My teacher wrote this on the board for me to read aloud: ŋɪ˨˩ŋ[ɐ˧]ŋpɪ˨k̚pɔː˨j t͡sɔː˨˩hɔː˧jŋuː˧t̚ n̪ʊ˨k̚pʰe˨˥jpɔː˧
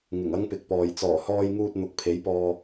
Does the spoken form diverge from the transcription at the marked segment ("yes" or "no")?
yes